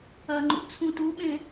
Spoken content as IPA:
ɐŋ͡ǃṵ t͡sʰũtuɓẽ

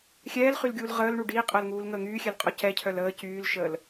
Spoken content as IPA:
xʲɛːlχylɡʲuːl ʁəːlɳu ɖiːqʼəːlŋuːlŋəː ŋyːxʲɛlqʼɔ cɛcʰœl əː cyːlʃəːl

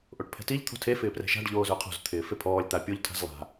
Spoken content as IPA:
ʔoʈpʰɛ̤tiʎ t̪ʰo̤tʰe fɪːprɛ̤ʃa̤ɖ ʎoːzʊːqʰo̤z t̪ʰɪːfepʰɔːlʲ t̪apʲoʎ tʰa̤zlˠa̤

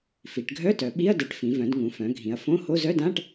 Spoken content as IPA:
fi˩˧ʈɡʱœ˧˥˧tœ˩˧ ɓi˧˥˧ɐ̯dɛ˩˧ʈfĩ˩˧ vœ̃˩˧dŋũ˩˧fœ̃˩˧ ɡʱĩ˩˧ɐ̯fõ˧˥˧ho˧˥˧ zœ˧˥˧dã˧˥˧ʈ

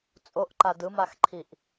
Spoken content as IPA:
t͡sʼoʔǃa dɯmaxǃʰiʔ

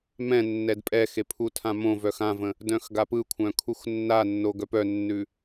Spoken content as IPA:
mɛ̃ nːɛdpʼɛxe pʰutʰãmõvœx ãvə̃ | dœ̃xɡapɯkʷʰœ̃ kʰuxnːanːo ɡœpœnːʉ

